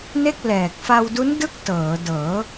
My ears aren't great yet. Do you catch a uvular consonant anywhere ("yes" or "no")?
no